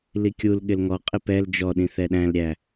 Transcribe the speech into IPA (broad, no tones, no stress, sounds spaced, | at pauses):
l i kʲ u l ɠ ɪ l ŋ ɔ qʼ ɪ p ɛ l d͡ʒ ɔ ɗ ĩ θ ɛ ɗ æ̃ l ɾʲ æ